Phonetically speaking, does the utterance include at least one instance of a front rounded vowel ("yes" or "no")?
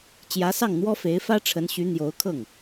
yes